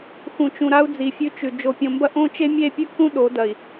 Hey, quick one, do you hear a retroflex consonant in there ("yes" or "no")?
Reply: no